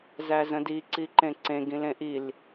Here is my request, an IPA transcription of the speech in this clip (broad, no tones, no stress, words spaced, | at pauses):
zæzə̃di ǀiǃẽǀẽ ɡĩlẽʔil